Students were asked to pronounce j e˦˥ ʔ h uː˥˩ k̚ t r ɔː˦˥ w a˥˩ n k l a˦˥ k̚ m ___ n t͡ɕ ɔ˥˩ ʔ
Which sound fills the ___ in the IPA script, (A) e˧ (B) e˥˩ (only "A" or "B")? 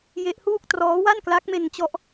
A